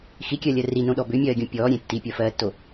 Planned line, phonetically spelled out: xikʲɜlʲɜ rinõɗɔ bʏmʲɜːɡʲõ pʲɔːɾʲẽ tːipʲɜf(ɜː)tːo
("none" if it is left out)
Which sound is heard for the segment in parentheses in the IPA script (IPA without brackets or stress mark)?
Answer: ɜː